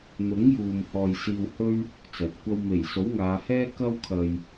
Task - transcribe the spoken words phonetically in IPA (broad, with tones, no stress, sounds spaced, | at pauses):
n̪ ʊ˨˥ ŋ j uː˨ m h ɔː˨ j s iː˧ w h ɵ˥ ɥ | t͡s ɐ˨ t̚ kʷ ɐ˥ w m e˨˩ j s o˨˥ w ŋ aː˨˧ h ɛː˥ k ɐ˥ w kʰ ɐ˨ j